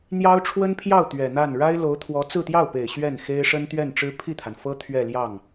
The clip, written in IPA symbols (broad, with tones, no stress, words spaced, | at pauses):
n̪jɑ˥ʊ̯ʈ͡ʂʰwə˥npʰjɑ˥˩ʊ̯ t̪ɥɛ˨˩n̪a˥˩n ɻa˥ɪ̯lo˧˥ʊ̯t̪ʰwɔ˧˥ t͡sɹ̩˥˧t̪jɑ˥˩ʊ̯pe˨˩ɪ̯ ɕɥɛ˥˩n xe˥ɪ̯ ʂə˥nt̪ɥɛ˥˩nʈ͡ʂɻ̩˥ pʰi˥˩t̪ʰa˩nfɤ˥ t̪ʰɥɛ˥˧ljɑ˥˩ŋ